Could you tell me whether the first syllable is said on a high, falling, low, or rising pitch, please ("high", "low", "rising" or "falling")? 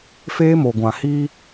high